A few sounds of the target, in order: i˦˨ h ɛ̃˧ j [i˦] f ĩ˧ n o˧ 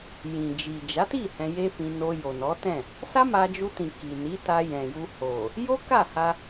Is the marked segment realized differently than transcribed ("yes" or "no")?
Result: yes